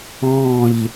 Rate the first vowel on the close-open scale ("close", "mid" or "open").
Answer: mid